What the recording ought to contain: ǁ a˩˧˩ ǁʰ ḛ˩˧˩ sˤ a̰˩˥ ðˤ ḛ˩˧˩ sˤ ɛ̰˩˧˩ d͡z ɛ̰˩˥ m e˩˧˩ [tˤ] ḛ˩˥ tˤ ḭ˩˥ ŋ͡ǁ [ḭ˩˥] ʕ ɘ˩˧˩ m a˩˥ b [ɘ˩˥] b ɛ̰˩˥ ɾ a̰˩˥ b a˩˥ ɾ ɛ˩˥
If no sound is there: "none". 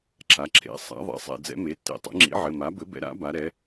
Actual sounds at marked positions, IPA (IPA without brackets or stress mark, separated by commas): tː, ḭ˩˥, ɘ˩˥